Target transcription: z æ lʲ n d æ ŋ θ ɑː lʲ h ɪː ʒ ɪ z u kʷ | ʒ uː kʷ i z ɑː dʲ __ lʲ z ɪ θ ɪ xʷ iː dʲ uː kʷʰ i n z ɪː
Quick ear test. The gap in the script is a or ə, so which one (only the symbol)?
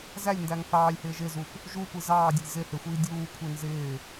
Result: ə